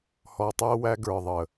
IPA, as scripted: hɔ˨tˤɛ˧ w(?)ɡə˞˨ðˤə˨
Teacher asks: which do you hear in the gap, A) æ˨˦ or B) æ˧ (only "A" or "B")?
B